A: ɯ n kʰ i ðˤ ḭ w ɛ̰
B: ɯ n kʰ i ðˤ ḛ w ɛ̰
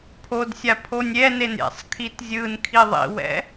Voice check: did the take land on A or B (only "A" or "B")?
A